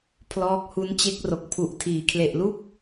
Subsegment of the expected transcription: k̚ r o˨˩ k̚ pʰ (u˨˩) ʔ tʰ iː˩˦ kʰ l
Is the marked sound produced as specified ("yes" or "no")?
yes